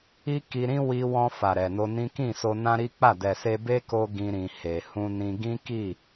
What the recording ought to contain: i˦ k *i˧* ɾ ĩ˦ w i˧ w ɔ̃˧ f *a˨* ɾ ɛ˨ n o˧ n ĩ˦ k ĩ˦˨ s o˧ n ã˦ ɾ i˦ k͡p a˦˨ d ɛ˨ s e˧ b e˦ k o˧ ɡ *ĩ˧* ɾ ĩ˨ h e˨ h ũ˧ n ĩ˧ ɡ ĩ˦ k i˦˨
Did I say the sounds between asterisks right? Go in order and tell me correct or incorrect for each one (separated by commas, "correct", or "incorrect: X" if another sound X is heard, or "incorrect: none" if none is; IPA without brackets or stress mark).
correct, correct, correct